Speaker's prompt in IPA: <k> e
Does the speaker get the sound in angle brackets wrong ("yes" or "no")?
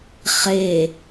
yes